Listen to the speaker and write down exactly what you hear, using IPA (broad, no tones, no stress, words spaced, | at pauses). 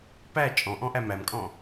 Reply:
pæ t͡ʃʼɔ̃ʔɔ̃ʔæ mæmkʼɔ̃